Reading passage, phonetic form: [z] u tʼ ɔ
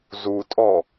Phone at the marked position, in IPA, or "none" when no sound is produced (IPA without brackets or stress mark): z